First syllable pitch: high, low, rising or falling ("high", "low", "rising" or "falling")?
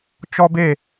high